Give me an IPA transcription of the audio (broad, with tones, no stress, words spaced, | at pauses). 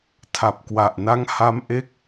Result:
tʰa˨˩p̚kwa˨˩ʔna˦˥ŋ ha˦˥mʔe˦˥k̚